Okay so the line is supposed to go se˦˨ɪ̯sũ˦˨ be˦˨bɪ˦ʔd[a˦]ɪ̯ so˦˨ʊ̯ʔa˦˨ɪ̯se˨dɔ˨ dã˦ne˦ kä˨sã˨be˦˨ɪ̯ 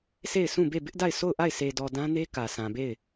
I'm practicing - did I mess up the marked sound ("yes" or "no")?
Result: yes